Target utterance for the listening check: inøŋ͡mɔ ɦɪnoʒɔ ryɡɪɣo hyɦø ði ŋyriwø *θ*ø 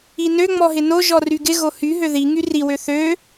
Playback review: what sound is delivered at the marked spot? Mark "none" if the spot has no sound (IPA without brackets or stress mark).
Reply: θ